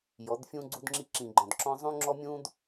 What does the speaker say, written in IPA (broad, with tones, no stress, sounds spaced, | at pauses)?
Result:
j ɔ˨˦ d fʲ ũ˦ ɡ͡ǀ u˦ d ŋ͡ǁ i˦ ǁ ĩ˨ ɡ͡ǃ ɔ̃˨ d ǁ ɔ̃˦ zˤ ũ˦ ŋ͡ǁ ɔ˦ mʲ ũ˦ d